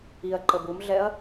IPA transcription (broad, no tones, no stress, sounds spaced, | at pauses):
i ɐ̯ ǃ ə b u m ɮ ɛ ɐ̯